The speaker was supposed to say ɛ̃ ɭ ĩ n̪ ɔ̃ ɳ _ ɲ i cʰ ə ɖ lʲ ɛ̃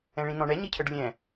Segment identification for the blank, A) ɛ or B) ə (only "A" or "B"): A